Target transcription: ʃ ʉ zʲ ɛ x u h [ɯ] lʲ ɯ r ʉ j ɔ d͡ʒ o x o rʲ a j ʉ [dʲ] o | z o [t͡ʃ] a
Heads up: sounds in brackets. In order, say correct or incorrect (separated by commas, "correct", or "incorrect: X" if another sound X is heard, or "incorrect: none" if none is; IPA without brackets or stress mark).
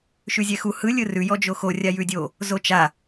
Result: correct, correct, correct